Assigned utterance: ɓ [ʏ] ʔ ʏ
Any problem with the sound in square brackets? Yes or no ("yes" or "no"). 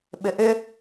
no